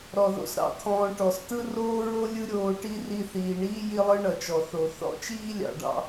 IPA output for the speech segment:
ɾ ɔ˧ ð o̰˦ s ɾ ɑ̰˦ t̪ʰ ɔ̃ː˧ ʈ ɔ˨ s t ɯ˦ r oː˦ ɹ o˦ lʲ ɯ˦ ɾʲ oː˧ ʈ i˦ r i˧ θ iː˨ ɳ iː˦ j i˦ lˠ ɯ˦ ɳ ʌ˨ t͡ʃ ɔ˨ θ o˨ θ ɔ̰˦ t͡ʃ iː˦ lʲ ɑ̰˨ ɖ ɑ̰˧

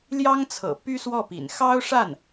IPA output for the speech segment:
l j ɑ˥ ŋ t͡sʰ ɤ̰˨˩ p y˥ s w ɔ˥˩ p ḭ˨˩ n x ɑ˥ ʊ̯ ʂ a˥˩ n

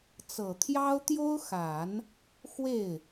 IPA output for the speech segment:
t͡s ɤ˨˩ t̪ʰ j ɑ˥ ʊ̯ t̪ j o˥ ʊ̯ x a˨˩˦ n | x w e˥˩ ɪ̯

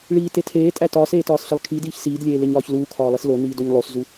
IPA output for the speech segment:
ɭ iː t e tʰ eː tʼ æ t ɒː s eː t ɒː s ɬ e lˠ kʰ i d iː ç s iː d lʲ eː l e ɲ ɒː ç l uː kʰ ɒː lˠ i s l o n iː d o ɲ lˠ o s z u

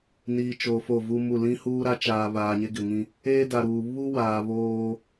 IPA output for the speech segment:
n iː˨ t͡ʃ oː˨ f o˦˨ v u˦ m u˦˨ l ĩ˦ h uː˦ ɾ a˦ t͡ʃ aː˨ β aː˨ ɲ e˦ ɡ ɪ˨ ŋ ĩ˦ | eː˦ d a˨ ɾ uː˨ β u˦ w aː˨ β oː˦

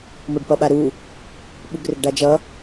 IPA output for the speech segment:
m o ɖ p ʌ ɓ a ɾ u | ɓ u ɡ r ɘ ɡ ɖ a d͡ʒ ʌ

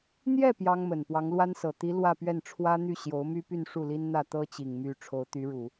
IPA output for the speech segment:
n̪ j ɛ˥˩ p j ɑ˥ ŋ m ə˨˩ n p w ɑ˧˥ ŋ l w a˥ n s ɤ˨˩ t̪ i˧˥ l w ä˥˧ p ɥ ɛ˥˩ n ʈ͡ʂʰ w ä˥ n̪ y˥˩ ɕ j o˧˥ ʊ̯ m y˥ p y˥˧ n ʂ u˥˩ l i˥ n n̪ ä˥˩ t̪ ɤ˥ t͡ɕ i˨˩ ŋ m y˥ ʈ͡ʂʰ o˧˥ ʊ̯ t̪ y˧˥ ɻ u˨˩˦

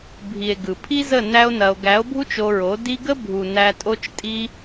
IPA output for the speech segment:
bʱ i˨ e̯ ɡ ɯ˨ pʰ i˦ z ə˦˨ n æ˦ o̯ n ɐ˧ o̯ ɡ æ˨˦ o̯ bʱ u˦ t͡ʃ o˧ ɹ o˨˦ d i˦ ɡ ə˦ bʱ u˨ n æ˧ tʼ o˦ t͡ʃ tʼ i˦

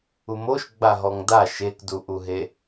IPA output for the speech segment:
u m o ʃ ɡ͡b a ɦ ɔ ŋ d a ʃ e k d u ʔ u ɦ e

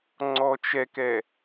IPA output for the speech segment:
ŋ͡ǀ ɔ t͡ʃ ɛ k ɛ

